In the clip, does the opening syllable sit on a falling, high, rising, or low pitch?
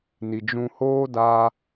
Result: low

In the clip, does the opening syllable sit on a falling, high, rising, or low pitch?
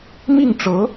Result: falling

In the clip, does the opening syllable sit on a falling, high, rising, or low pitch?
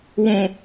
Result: high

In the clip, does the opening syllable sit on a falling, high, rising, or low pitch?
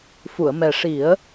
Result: low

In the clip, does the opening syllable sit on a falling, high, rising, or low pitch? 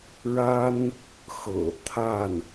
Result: high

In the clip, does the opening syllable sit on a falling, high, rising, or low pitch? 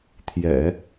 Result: low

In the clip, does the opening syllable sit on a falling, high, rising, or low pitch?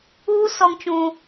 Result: high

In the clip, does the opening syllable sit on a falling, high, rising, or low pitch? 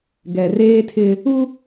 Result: low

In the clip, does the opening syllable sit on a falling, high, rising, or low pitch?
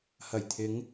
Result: low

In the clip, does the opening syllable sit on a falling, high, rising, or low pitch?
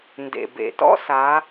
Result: low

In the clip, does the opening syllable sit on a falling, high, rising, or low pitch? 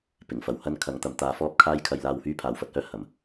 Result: low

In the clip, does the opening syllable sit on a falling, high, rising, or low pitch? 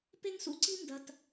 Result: high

